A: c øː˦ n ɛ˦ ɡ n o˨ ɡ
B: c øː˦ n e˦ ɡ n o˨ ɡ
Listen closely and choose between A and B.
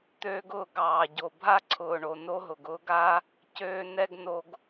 A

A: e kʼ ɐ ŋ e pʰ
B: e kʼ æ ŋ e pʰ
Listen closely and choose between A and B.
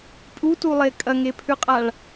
A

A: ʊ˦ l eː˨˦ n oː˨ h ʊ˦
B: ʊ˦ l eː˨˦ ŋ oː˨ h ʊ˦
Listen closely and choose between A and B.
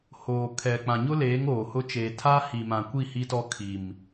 B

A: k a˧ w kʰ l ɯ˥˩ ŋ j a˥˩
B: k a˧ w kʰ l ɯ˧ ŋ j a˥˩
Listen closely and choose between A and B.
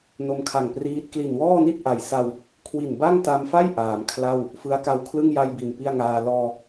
A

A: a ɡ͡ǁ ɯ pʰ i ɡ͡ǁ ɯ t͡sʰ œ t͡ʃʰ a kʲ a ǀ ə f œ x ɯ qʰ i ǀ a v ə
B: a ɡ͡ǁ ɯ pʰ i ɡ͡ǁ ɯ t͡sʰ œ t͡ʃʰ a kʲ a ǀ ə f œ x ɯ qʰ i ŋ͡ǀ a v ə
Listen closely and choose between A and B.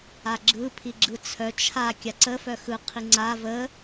B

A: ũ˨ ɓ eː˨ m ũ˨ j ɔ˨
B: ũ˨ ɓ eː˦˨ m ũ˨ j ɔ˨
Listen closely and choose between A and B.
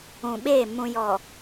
B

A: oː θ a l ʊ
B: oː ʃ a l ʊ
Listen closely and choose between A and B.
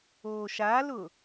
B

